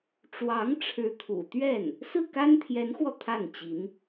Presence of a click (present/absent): absent